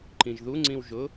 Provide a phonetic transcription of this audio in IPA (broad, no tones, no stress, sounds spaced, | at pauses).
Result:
ǃ ĩ ʒ ð u ŋ͡ǀ ĩ w ʒ ʊ